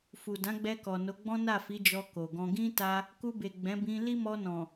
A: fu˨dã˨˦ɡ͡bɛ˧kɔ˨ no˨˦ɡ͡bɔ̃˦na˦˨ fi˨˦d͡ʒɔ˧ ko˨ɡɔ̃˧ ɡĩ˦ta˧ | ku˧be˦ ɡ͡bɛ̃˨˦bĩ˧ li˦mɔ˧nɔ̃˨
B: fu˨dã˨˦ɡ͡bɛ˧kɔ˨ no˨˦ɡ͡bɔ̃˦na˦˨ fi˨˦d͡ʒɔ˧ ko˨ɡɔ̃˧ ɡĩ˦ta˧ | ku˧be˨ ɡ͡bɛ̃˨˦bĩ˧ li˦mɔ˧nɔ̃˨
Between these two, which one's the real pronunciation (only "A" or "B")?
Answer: B